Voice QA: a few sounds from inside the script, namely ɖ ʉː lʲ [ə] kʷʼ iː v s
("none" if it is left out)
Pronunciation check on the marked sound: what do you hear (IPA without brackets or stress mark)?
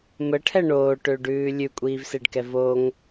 ʉ